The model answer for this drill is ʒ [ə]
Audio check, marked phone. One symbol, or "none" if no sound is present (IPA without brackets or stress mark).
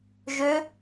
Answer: ø